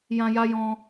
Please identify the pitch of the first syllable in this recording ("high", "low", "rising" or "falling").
high